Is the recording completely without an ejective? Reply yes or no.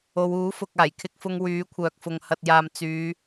yes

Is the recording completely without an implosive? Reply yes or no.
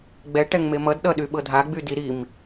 no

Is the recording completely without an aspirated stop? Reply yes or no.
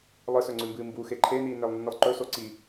no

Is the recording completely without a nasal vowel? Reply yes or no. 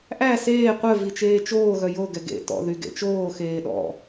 yes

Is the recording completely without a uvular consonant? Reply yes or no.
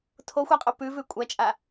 no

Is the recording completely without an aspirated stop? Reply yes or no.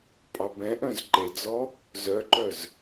yes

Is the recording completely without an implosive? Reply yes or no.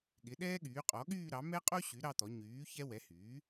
no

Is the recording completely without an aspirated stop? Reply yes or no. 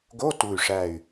yes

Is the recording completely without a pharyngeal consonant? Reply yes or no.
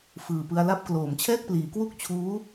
yes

